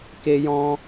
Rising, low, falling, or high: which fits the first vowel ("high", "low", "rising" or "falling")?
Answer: high